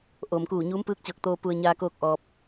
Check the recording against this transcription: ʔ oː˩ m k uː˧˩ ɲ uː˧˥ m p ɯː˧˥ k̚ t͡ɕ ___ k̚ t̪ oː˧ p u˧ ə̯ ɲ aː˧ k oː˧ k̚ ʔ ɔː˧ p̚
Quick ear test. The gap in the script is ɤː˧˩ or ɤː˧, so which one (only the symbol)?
ɤː˧˩